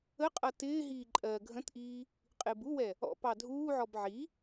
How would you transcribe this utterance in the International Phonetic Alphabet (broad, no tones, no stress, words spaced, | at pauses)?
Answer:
əqʼʌ tɪːɦiː ǃʼɜ ɡʱə̃tʔiː | qʼɪːbuwɛ | ɔ̰ pɑdʱuːʕɔb ʕi